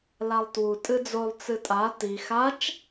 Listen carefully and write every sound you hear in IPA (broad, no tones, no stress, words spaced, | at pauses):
lalˠtwu tʼɨd͡zolˠ t͡sɨtʼa ti xat͡ʃ